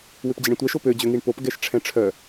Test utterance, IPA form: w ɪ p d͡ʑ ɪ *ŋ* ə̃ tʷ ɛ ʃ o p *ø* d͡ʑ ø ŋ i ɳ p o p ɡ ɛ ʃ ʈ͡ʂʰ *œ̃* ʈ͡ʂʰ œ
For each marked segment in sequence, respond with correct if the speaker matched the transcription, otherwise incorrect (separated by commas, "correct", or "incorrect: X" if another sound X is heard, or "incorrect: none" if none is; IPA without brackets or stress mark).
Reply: incorrect: ɳ, correct, incorrect: ɛ̃